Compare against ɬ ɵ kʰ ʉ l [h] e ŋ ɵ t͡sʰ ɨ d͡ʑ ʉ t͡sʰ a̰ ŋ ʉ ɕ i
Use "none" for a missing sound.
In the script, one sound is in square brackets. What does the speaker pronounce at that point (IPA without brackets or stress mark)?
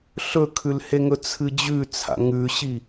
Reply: h